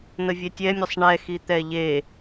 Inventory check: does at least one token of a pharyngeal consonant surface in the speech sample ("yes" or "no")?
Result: no